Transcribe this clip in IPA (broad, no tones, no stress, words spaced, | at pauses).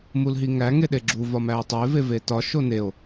mulɦiŋæ ŋeɗeɡ͡ǁu vɒmæe̯tˤoe̯ vevetɒ ʃoneo̯